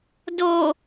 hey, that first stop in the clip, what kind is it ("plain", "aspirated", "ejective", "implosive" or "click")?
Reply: plain